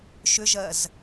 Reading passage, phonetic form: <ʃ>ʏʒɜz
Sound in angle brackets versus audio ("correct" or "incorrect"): correct